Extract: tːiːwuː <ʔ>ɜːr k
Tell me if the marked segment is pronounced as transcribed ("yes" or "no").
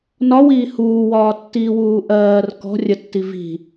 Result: yes